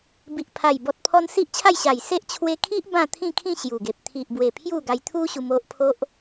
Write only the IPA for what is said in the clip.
bi˨ʔ pʰa˨˩jbɔ˨t̚pʰɔ˧n si˦ʔt͡ɕʰa˥˧jɕa˨˩j se˦ʔ t͡ɕʰwe˧kʰi˦ʔ bã˥˧t̪ʰĩ˥˧kʰĩ˥˧ ɕju˨˩ɡe˨p̚ t̪ʰi˨ʔbwe˨˩ pʰju˥˧ɡa˧j t̪ʰu˦ɕu˧m o˦ʔpʰo˦ʔ

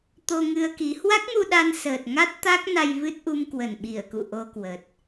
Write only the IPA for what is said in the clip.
t̪o˧ŋɨ˧ə̯ki˨˦ hwa˦˥k̚mu˧ ɗa˧nsəː˨˩t̚ŋa˦˥t̚ t̪a˦˥k̚ na˧j vɨ˦˥t̚ʔu˧m kwə˧˩nɓi˧˩ə̯kṵ˧˨ ʔo˧kwə˨˩t̚

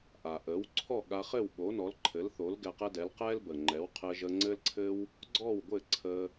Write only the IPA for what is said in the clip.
ʔa˩ʔə˩˥w ǀʰɔ˥˩ɠa˧χɘ˥˩w ɓo˩˥nɔ˩˥lǃʰɘ˩˥lθo˩˥l ɡɛ˧qɛ˥dɛ˩˥l qɛ˥lbə˩ŋ͡ǃɛ˩˥w qʰɘ˧ʒə˧ŋ͡ǀɘ˥lǀʰɘ˥w | ɡ͡ǀɔ˥˩wɡʷɘ˥˩ǀʰə˧

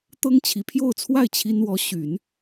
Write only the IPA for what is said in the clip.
t̪ɤ˥ŋt͡ɕʰi˨˩pʰjo˥˧ʊ̯t͡sʰwa˥˩ɪ̯ t͡ɕʰi˥nwɔ˧˥ ɕy˨˩˦n

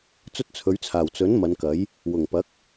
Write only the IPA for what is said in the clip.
t͡sɵ˥t̚t͡sʰɵ˨˥ɥt͡sʰaː˨˩w t͡sɵ˨˥n mɐ˨˧nkɐ˨˥j | wʊ˨˩ŋpɐ˨˥k̚

